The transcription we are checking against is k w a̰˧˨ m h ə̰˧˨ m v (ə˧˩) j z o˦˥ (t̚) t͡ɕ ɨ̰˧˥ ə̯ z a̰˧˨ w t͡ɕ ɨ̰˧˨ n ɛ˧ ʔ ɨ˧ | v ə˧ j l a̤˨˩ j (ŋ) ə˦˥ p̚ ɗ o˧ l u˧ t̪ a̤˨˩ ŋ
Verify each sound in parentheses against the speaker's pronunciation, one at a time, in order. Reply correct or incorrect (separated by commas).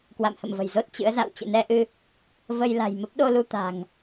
incorrect, correct, incorrect